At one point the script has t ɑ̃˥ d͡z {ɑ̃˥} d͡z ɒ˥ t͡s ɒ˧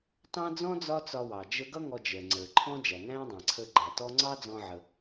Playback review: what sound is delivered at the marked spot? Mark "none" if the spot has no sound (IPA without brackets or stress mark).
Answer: ɔ̃˥